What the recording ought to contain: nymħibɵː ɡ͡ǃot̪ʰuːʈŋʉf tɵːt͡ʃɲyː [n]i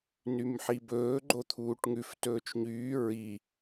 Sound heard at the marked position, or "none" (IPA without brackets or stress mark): ɹ